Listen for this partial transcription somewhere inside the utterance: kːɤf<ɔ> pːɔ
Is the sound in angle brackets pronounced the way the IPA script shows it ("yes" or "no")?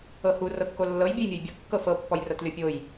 no